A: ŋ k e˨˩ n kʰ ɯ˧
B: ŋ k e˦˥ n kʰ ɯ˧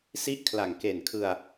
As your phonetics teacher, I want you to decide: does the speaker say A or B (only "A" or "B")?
A